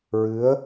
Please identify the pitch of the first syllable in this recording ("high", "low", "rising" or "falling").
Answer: rising